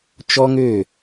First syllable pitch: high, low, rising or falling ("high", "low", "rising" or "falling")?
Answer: high